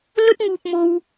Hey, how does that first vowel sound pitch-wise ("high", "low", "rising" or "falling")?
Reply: high